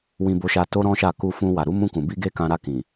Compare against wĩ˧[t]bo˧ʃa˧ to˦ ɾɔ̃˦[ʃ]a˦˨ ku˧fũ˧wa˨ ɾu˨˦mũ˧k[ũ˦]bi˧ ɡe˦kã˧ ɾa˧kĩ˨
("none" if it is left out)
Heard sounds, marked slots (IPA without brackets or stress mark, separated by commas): none, ʃ, ũ˨